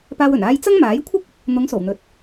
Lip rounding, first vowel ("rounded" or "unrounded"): unrounded